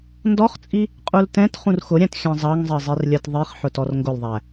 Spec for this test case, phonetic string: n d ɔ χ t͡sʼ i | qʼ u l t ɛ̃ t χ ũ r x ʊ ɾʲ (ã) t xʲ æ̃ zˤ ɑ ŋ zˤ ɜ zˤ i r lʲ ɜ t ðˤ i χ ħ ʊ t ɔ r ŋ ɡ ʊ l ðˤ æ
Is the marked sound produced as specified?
no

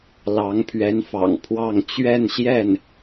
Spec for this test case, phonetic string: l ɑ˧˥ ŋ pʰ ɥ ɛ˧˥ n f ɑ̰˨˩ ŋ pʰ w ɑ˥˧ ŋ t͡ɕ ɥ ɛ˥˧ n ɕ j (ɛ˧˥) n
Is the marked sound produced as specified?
no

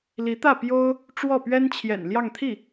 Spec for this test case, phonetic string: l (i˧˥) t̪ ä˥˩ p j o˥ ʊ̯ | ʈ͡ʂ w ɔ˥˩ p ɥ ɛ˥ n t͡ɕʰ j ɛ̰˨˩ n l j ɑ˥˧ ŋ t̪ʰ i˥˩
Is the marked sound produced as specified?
yes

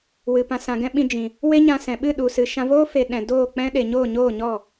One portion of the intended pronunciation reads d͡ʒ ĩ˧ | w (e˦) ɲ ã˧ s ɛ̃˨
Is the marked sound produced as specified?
yes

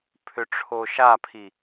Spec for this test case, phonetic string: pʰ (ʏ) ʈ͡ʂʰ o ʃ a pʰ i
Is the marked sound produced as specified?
yes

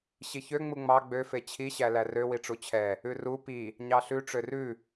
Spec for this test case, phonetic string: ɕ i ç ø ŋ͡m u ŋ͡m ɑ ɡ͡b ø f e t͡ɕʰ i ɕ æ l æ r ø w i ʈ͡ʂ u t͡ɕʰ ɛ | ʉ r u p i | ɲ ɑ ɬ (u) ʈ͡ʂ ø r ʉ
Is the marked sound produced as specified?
no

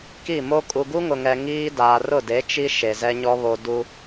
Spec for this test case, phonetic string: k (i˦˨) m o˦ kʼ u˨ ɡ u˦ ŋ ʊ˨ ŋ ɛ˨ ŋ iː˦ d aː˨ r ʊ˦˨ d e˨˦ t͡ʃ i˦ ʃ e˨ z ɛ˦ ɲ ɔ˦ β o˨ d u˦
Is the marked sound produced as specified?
yes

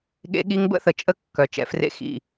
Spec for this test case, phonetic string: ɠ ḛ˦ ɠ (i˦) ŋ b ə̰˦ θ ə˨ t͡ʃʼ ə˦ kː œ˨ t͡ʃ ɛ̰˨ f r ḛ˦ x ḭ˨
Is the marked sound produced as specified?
yes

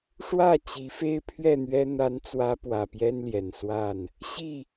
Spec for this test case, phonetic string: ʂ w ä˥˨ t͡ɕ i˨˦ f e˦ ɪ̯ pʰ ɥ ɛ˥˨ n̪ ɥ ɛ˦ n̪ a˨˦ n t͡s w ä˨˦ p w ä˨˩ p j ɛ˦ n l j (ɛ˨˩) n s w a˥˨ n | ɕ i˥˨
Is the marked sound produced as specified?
yes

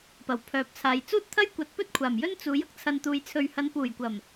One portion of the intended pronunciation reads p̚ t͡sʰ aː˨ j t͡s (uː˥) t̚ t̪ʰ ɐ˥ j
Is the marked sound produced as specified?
yes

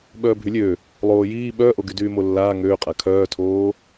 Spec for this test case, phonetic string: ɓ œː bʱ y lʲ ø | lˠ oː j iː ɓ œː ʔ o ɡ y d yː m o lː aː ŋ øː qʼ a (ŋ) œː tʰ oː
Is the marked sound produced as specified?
no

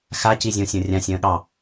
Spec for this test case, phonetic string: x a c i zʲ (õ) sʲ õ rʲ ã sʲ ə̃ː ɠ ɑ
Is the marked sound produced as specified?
yes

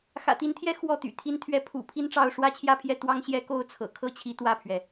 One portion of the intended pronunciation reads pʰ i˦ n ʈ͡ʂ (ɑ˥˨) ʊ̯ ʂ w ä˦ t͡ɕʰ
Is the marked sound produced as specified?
yes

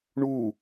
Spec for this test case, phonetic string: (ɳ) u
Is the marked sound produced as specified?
yes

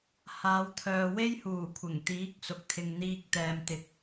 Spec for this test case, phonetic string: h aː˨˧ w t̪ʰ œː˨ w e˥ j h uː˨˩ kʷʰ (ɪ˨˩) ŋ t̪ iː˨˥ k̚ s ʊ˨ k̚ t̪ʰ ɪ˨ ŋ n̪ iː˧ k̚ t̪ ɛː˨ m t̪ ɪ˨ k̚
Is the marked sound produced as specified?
yes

